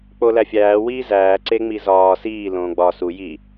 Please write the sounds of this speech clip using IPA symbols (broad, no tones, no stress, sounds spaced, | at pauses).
k͡p o l æ fʲ æː w iː z æː ǀ e ŋ͡m i z ɒː s iː l õː ɡ͡b ɒ s u j i